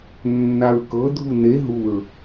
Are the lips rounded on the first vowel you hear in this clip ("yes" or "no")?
no